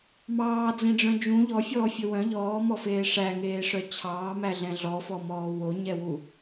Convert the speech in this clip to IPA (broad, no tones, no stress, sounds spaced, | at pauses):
m ɑː d͡z ẽ ɖ͡ʐ œ̃ d͡ʒ ũ ʎ ɔ fʲ ɔː fʲ ɵ w œ̃ ʎ ɔː m ɔ f eː ʂ æ ŋ eː ʂ œ t͡ɕʰ ɑː m æ ɮ ɛ̃ ɮ ɔ f ɔ m ɔː w o ɲ ɛ w u